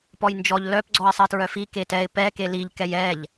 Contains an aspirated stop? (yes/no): no